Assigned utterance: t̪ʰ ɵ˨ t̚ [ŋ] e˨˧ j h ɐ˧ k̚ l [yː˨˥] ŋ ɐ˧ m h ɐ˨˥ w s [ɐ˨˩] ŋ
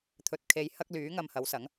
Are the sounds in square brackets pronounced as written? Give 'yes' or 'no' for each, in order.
no, yes, no

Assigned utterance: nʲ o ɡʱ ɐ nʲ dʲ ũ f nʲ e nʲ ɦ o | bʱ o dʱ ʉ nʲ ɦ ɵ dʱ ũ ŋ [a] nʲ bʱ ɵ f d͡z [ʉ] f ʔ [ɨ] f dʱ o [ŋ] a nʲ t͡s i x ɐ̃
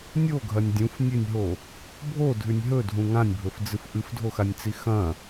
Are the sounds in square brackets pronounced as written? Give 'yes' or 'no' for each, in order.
no, no, yes, no

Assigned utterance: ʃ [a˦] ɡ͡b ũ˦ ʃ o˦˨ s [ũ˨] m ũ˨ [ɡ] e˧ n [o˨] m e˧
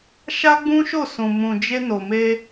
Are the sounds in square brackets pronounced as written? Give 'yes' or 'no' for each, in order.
yes, yes, no, yes

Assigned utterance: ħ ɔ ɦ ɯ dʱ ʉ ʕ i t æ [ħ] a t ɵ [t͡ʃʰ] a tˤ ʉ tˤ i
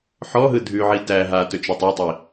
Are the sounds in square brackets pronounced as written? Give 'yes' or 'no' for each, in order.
no, no

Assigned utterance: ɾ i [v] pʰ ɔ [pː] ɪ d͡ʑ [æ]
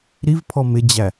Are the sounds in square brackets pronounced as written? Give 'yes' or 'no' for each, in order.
yes, no, yes

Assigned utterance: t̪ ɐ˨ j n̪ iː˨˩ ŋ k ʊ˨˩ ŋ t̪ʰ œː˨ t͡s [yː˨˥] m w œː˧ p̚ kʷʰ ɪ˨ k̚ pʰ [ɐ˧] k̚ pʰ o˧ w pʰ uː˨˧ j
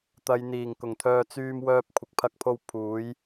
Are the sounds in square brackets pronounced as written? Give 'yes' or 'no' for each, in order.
no, yes

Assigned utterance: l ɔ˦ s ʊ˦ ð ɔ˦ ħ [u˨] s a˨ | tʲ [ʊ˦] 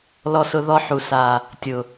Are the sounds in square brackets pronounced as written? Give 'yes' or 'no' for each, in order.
yes, no

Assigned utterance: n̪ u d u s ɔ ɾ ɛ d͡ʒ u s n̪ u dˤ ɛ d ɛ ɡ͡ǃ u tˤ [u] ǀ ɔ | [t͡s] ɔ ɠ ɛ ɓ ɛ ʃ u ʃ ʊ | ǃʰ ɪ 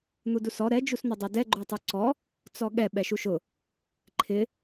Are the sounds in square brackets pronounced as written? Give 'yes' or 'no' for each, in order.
yes, yes

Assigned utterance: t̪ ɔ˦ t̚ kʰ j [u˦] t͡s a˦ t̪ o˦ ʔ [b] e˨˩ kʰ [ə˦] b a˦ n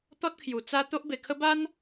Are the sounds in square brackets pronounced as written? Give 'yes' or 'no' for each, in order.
no, yes, yes

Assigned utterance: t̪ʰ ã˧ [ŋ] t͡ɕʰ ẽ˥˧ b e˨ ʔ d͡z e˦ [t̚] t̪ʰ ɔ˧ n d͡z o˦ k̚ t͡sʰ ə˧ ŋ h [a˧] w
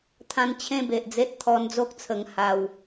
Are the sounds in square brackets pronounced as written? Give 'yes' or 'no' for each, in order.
no, yes, yes

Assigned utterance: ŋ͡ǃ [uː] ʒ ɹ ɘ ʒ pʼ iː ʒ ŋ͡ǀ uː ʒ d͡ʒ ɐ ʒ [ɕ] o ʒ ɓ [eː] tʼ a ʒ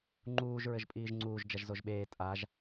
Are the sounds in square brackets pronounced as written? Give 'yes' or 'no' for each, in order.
yes, no, yes

